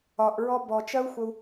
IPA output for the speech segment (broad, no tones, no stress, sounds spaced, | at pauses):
ɒ ʔ ɹ ɔ b ɔ t͡ʃ ɜ u̯ xʷ ə u̯